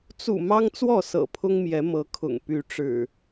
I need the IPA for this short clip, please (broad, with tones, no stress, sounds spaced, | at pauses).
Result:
t͡s ṵ˨˩ m ɑ˦ ŋ t͡s w ɔ˥˨ s ɤ̰˨˩ pʰ ʊ˦ ŋ m j ɛ˨˦ m ɤ˨˦ kʰ ʊ̰˨˩ ŋ p y˨˦ ʈ͡ʂ ɻ̩˨˩